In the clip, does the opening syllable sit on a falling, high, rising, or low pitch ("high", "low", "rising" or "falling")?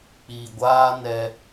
low